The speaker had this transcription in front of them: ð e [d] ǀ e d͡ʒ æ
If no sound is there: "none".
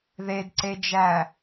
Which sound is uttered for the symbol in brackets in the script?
d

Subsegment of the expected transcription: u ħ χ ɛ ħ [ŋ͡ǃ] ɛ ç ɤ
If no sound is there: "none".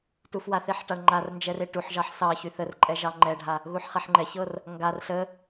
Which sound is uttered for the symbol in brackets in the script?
ŋ͡ǃ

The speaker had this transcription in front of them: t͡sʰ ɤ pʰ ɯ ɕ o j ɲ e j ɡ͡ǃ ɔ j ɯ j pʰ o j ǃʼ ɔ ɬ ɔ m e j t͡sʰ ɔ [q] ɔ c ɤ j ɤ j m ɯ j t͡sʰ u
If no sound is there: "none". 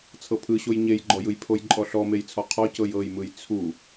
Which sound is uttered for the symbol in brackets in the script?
qʰ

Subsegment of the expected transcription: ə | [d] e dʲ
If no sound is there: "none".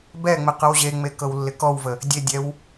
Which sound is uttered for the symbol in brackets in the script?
dʲ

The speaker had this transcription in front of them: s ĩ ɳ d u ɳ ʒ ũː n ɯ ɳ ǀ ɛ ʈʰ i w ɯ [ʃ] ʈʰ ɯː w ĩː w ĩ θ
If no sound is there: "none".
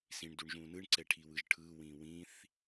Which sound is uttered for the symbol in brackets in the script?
ʒ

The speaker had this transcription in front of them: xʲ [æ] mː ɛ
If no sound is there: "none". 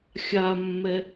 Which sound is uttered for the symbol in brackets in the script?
a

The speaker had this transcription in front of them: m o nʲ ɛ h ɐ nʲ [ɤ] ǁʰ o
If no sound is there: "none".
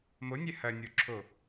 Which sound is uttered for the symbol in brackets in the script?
o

